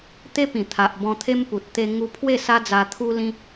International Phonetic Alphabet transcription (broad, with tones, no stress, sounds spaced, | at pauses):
t̪ e˦ p ĩ˨˩ t̪ʰ a˨ ʔ b ɔ̃˧ t̪ʰ e˦ m p u˨ t̚ t̪ e˧ ŋ u˧ pʰ w e˥˧ s a˦ d͡z a˧ t̪ʰ u˦ l ĩ˦